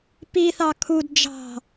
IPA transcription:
p i θ ɑ kʰ u d d͡ʒ ɑ̤

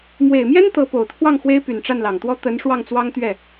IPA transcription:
m w e˨˩ ɪ̯ m j ɛ˥ n t̪ ɤ˧˥ p o˨˩ ʊ̯ t̪ʰ w ɑ˥˩ ŋ x w e˥ ɪ̯ p y˨˩ n ʈ͡ʂ a˥˩ n l ɑ˨˩ ŋ t̪ w ɔ˥ t̪ ə˧˥ n ʂ w ɑ˥˩ ŋ t͡s w ɑ˥ ŋ t̪ ɥ ɛ˥˩

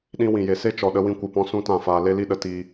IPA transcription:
ɗ ĩ˧ w ĩ˨ j e˨ s e˦ t͡ʃ ɔ˨ ɗ ə˧ w ĩ˧ kʷ ɨ˨ p ɔ̃˧ s ũ˦ t ã˦˨ f aː˧ l e˦ l i˦ ɗ ə˧ t i˧

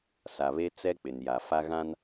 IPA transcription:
s a˨ β e˦ t͡s ɛ˦ k͡p ɪ˨ n j a˨ f a˦ ɣ ã˦ n

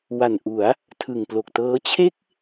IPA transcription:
w a˨˩ n ʔ u˩˦ a̯ | tʰ ɯ˨˩ ŋ p l o˨˩ k̚ t ɤː˦˥ t͡ɕʰ e˥˩ k̚

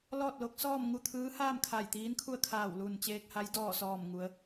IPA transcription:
l ɔː˥˨ t̚ l o˧˥ k̚ s ɔː˥˨ m ŋ u˥˨ t̪ʰ ɯː˧˥ h aː˥˨ m kʰ a˧˩ j t̪ iː˧˥ n kʰ u˥˨ ə̯ kʰ aː˧˩ w l u˧˩ n t͡ɕ eː˧ k̚ h a˧˥ j d ɔː˧˩ s ɔː˧˩ m ŋ u˩˧ ə̯

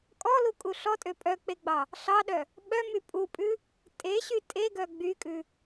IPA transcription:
kʼ ɔ l u kʼ u ɬ ɔ tʼ ø pʼ œ k͡p e ɡ͡b ɑ | ɬ ɑ ɗ œ | ɓ œ m y pʼ u pʼ ʉ | tʼ e ɕ y tʼ e ɡ œ ɡ͡b y kʼ ʉ

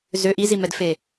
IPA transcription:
z ø ʔ i z i m ɛ d f e

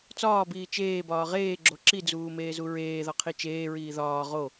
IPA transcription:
t͡s ɒː b iː t͡ʃ eː b ɒː ʁ eː ɡ͡ǁ o ǁ i d͡z uː m eː z u ɹ eː ð ɒ qʰ i t͡ʃ eː ɹ iː ð ɒː ʁ o

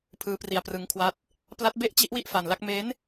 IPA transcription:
pʰ ɯː˦˥ p r i˧ a̯ p r ɯ˦˥ ŋ kʰ w a˦˥ t̚ | p l a˦˥ t̚ b e˥˩ ʔ t͡ɕ i˦˥ ʔ w i˥˩ ʔ f a˧ n l a˦˥ k̚ m e˦˥ n

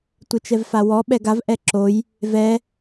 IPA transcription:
tʷ ɪ t͡ʃ ɛ v f a w ɔ ɓ ɛ ɡ a v ʔ ɛ ǁ o j | v ɛ

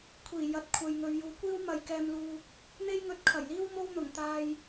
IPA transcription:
kʷʰ iː˨˩ j ɐ˨˥ t̚ kʷʰ ɐ˨ j ŋ ɵ˨ ɥ j uː˨ kʷ iː˥ w m ɐ˨ j k ɛː˧ m l uː˧ | n̪ e˥ j ŋ ɵ˧ t̚ kʰ ɐ˨˩ j l iː˥ w m o˥ w n̪ ʊ˨˩ ŋ t̪ aː˧ j

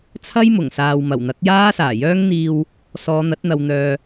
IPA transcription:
t͡sʰ ɐ˥ j m ʊ˨˩ ŋ s aː˨ w m ɐ˨˩ w n̪ ɐ˨˥ k̚ j aː˥ s aː˨˩ j œː˥ ŋ n̪ iː˧ w | s ɔː˨˧ n̪ ɐ˨˥ t̚ n̪ ɐ˨ w n̪ œː˨

